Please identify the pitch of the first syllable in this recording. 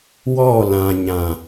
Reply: falling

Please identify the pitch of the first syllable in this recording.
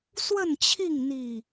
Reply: falling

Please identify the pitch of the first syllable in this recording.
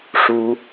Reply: high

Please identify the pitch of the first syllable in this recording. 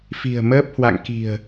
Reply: low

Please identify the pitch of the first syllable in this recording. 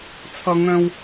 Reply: high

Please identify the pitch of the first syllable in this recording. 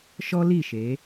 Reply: high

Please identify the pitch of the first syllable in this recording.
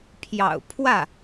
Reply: low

